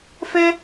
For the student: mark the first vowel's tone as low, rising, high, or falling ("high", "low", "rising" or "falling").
high